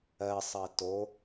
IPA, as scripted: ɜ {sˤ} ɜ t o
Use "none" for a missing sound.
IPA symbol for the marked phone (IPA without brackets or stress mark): sˤ